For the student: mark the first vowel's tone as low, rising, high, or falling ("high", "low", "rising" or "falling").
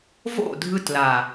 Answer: falling